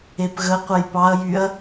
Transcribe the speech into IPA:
e p ɣ ə qʷ ə j p ɑ ɐ̯ j y ɐ̯

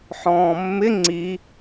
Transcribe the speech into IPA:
ħ ɔ̃ː mː ɪ ŋ͡ǀ i

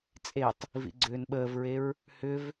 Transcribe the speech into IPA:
t͡sʼ e tˤ | v ḭ ɡ͡ǀ ʏː n ɓ əː v ɹ e ɹ | h ʏ v

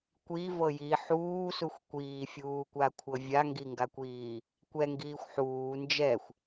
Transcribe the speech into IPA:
kʷ i v ɤ j i ħ uː s u xʷ kʷ iː fʲ uː kʷ a kʷʰ ɤ vʲ a ŋ ɡ i ŋ ɡ a kʷ iː | kʷ ɛ ŋ ɡ iː xʷ ħ uː n d͡ʒ ɛ xʷ

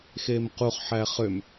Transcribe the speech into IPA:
x e m q u χ ħ æ χ ø m

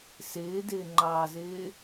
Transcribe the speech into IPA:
s ɪː d ɪː ŋ͡ǃ ɑː z ɪː

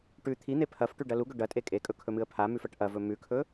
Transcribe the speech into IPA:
ʈ ʉ t̪ʰ i n̪ e pʰ ɐ f ʈ ʉ ɖ ɐ l u ɡ ɵ ɖ ɐ tʼ e kʼ e kʼ ɵ kʰ ɵ m ɨ ə̯ pʰ a m ʉ f ɐ ʈ ʔ ɐ v ɵ m ʉ kʰ ɵ

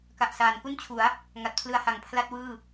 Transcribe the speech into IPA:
k a˨˩ ʔ s aː˩˦ n k u˥˩ n t͡ɕʰ u˩˦ a̯ | ŋ a˨˩ t̚ pʰ l ɯ˧ a̯ h a˨˩ ŋ pʰ l a˥˩ t̚ w ɯː˥˩

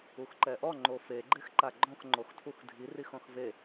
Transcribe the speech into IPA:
u x ǃ ɛ ʔ ɔ ŋ͡ǃ o f e ɡ͡ǃ e x ǃ a ɡ͡ǃ ɔ̃ x ŋ͡ǃ o x tʰ u x dʱ i r i x ɔ̃ x v e

